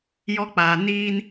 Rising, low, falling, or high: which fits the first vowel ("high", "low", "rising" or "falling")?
high